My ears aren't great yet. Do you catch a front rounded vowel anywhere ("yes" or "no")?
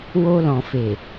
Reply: no